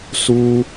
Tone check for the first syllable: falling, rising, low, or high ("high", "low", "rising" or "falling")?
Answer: high